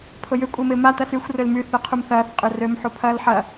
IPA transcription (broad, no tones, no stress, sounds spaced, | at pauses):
pʰ ʊ j ʏ kʷʼ ɪː m ɪː m a t ɐ s y xʷ r ø l m y θ œ qʰ u m θ ɐː θ qʼ ʏ r ø m ħ u pʰ ɐː l ħ ɐ